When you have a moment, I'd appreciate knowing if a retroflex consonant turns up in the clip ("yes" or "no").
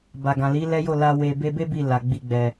no